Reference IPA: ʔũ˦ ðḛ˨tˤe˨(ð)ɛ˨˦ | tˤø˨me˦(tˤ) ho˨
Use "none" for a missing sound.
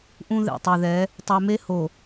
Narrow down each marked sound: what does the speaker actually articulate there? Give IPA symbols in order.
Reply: ð, none

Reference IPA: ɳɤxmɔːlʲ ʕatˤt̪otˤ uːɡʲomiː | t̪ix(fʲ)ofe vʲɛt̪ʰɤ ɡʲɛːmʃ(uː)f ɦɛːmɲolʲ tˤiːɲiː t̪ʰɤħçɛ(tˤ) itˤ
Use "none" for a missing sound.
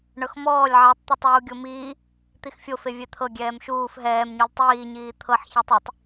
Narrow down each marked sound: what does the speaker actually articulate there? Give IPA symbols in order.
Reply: fʲ, uː, tˤ

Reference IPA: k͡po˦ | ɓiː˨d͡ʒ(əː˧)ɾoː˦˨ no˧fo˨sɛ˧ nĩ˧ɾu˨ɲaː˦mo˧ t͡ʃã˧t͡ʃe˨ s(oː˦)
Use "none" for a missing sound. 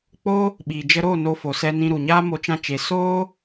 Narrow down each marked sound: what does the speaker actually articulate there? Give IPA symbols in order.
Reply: ə˧, oː˦

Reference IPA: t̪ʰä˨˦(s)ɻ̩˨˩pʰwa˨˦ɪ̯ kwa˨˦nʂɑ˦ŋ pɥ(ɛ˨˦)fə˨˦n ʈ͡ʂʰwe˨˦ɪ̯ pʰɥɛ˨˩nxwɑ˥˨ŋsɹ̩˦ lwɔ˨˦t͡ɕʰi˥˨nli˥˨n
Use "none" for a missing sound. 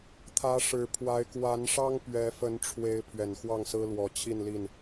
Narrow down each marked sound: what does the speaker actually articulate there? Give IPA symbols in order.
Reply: ʂ, ɛ˨˦

